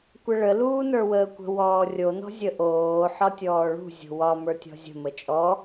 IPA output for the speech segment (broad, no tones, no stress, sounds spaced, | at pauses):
kʷ ə ɭ ə l uː n ə˞ w əː kʷ ə̤ w ɔː rʲ o n ɔ̤ zʲ ə ʔ oː ħ ɒ tʲ ɔː ɭ ṳ zʲ o̤ w ɒ m ə˞ tʲ ɔ̤ zʲ ə̤ m ə t͡ʃʼ ɔ